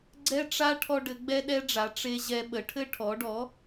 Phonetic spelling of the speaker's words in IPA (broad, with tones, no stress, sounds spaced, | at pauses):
ɡ͡ǀ ɛ˦ ʈ͡ʂ a˦ ʈʰ ɔ˦ ɖ ɘ˩˥ ɡ͡b ɛ˦ ɗ ɛ˦ ɖ͡ʐ a˩˥ ʈ͡ʂ e˦ ʑ ɛ˦ ɓ ə˩˥ ʈʰ ɘ˦ ʈʰ ɔ˩˥ ɖ ɔ˩˥